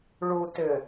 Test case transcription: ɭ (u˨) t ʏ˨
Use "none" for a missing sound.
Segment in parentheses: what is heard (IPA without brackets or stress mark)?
u˨